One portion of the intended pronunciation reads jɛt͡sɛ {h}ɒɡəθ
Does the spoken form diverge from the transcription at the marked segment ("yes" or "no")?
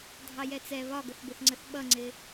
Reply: yes